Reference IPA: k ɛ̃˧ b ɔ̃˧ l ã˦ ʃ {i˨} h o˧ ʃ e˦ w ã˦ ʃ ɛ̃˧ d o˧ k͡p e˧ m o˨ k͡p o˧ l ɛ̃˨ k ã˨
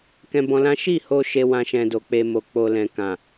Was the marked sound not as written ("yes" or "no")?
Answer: yes